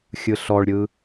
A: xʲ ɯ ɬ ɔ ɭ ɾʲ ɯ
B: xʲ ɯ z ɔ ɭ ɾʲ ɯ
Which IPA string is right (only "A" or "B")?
A